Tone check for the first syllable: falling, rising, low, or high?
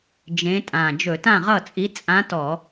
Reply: rising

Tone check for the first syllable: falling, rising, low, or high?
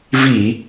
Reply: low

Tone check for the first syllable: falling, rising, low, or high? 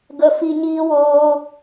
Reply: high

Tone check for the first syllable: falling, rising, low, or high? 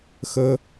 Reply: high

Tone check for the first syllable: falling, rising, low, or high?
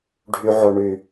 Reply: high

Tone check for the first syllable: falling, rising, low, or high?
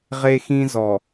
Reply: high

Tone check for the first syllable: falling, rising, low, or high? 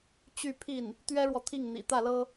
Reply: falling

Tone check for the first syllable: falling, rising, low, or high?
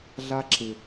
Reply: high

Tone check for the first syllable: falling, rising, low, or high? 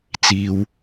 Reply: low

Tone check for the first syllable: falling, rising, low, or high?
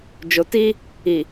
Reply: low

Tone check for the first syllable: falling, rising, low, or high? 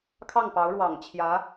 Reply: falling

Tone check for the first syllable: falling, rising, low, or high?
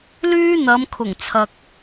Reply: high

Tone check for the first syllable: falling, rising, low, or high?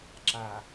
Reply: low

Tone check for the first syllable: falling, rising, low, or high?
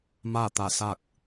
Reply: falling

